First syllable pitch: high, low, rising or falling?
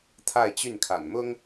falling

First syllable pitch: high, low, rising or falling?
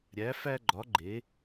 rising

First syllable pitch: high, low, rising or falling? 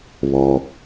low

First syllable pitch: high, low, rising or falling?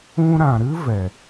high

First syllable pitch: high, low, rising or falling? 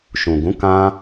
low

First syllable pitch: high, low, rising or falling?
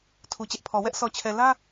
low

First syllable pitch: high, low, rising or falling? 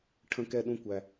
low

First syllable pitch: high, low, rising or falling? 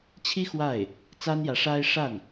high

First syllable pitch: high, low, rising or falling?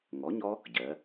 rising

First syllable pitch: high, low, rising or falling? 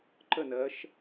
falling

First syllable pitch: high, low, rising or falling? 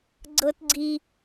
high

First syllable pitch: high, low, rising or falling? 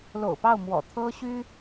low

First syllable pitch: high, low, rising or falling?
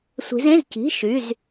rising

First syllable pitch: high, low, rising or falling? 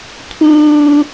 high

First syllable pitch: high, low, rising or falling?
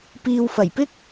low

